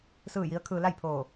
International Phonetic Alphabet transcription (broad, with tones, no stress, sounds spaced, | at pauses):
s ɯː˥˨ j i˧˥ ə̯ kʰ ɯː˧ l a˥˨ j pʰ oː˧˩